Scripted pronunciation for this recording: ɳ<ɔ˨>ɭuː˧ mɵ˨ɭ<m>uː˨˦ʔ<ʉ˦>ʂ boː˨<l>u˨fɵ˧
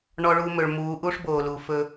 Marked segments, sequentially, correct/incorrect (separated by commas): incorrect, correct, incorrect, correct